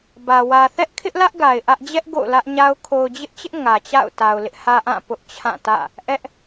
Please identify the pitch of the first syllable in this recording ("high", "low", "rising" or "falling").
low